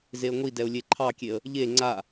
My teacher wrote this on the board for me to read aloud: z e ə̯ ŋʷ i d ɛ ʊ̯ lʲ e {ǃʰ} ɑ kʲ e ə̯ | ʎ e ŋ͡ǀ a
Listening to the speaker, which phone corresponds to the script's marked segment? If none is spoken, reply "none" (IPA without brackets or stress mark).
ǃʰ